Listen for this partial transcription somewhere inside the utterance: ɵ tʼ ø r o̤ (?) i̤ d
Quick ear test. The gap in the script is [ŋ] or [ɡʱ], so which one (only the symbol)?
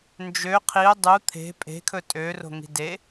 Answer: ŋ